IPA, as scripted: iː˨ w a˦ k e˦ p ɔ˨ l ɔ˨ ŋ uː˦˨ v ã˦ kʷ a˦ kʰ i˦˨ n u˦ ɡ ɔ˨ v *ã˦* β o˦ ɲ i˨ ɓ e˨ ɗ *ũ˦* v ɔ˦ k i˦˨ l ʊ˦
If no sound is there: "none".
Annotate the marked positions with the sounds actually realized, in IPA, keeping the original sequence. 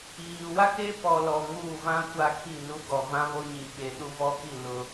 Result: ã˦, u˦

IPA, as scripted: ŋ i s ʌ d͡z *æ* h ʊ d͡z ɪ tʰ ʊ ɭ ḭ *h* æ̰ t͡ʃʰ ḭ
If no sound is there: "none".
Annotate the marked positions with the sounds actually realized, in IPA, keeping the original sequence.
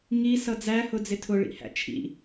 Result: æ, h

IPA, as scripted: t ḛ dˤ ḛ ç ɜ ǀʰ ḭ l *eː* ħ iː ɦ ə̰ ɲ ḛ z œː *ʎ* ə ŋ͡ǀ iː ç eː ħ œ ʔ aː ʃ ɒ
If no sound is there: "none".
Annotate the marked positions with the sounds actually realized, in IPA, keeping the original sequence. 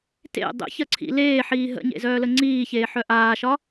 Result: eː, l

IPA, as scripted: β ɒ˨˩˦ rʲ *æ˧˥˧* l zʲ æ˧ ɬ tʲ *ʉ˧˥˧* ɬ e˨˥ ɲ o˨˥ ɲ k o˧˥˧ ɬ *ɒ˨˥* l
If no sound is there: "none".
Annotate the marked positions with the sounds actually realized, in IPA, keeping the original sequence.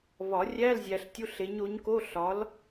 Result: æ˧˥˧, u˧˥˧, ɒ˨˥

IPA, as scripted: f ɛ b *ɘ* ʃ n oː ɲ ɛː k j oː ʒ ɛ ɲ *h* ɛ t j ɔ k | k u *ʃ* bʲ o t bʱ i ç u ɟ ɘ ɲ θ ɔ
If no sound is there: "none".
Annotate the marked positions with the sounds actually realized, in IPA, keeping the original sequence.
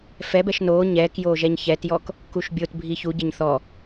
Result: ɛ, ç, ʃ

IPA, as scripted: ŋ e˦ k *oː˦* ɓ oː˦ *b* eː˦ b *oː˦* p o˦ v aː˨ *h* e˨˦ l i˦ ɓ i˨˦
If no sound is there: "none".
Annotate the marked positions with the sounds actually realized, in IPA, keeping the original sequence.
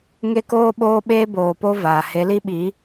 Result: oː˦, ɓ, oː˨, h

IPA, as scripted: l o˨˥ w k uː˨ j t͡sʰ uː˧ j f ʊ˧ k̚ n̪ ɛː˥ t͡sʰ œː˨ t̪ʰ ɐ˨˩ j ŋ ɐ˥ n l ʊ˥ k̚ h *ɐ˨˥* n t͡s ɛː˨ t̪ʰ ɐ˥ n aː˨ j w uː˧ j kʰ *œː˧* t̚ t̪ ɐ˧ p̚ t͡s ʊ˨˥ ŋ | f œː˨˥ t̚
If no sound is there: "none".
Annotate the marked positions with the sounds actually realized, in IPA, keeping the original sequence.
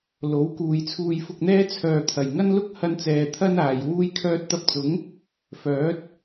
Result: ɐ˧, œː˧

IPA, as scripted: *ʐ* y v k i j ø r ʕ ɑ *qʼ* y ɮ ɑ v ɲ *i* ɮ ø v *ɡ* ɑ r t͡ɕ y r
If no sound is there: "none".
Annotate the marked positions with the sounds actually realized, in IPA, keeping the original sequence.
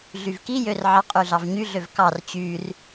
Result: ɮ, qʼ, y, k

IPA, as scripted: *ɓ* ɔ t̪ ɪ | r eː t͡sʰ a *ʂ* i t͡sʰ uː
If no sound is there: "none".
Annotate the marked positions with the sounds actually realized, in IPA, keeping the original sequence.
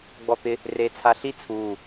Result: ɡ͡b, ɬ

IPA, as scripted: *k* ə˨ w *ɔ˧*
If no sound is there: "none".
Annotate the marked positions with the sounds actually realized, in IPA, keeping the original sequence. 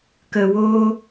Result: k, o˧

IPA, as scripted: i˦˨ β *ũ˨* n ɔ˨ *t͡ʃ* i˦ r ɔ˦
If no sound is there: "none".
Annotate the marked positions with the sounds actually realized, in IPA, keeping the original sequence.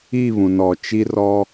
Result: ũ˨, t͡ʃ

